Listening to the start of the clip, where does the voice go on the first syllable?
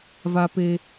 low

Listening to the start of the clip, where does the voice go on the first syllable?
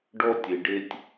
high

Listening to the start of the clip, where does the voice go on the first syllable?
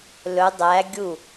rising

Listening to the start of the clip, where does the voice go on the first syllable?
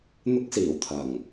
high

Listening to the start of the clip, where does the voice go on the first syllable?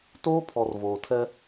high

